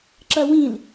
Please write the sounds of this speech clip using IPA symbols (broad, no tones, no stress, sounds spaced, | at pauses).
ǁ ɐ w ĩ l